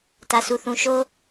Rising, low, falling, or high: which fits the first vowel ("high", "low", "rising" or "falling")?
low